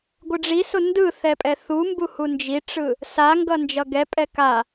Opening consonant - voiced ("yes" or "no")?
yes